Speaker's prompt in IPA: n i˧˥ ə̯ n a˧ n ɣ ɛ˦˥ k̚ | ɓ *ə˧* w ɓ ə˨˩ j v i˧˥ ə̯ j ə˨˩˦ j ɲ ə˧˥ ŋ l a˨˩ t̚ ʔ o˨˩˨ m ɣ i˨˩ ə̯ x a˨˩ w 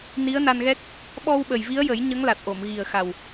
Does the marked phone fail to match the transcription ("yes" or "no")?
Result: yes